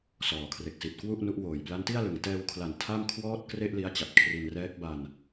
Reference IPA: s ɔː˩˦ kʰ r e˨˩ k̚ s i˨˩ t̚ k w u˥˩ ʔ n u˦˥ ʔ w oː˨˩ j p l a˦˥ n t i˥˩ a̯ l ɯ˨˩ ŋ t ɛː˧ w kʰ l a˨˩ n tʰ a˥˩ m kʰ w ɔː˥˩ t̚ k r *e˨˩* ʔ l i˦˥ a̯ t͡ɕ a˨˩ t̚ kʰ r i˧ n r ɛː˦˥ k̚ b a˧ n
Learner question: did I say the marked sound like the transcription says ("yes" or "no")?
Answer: no